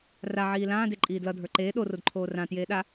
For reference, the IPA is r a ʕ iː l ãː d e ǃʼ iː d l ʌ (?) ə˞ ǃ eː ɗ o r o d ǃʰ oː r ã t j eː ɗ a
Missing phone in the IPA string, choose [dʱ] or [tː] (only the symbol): dʱ